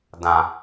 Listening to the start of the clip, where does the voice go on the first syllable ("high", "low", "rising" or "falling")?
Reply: low